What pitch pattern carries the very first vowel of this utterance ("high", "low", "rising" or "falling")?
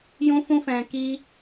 high